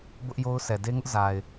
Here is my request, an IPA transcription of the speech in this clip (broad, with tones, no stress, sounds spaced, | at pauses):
b ʊ˦ ʔ j o˦ ʊ̯ s ɛ˨ d e˦ ŋ ʊ˦ ʔ z a˨ ɪ̯